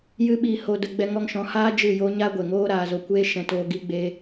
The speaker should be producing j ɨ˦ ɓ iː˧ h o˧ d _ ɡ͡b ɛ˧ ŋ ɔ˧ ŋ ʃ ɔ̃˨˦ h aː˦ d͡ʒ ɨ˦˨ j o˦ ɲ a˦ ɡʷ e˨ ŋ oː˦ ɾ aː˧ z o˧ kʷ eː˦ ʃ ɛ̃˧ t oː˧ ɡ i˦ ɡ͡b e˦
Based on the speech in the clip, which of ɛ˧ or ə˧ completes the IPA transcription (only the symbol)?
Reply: ə˧